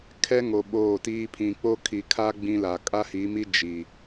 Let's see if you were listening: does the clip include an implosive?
yes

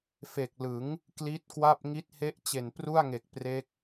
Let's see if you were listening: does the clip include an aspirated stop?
no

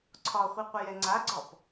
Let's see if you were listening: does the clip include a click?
yes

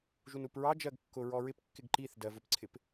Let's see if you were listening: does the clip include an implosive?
no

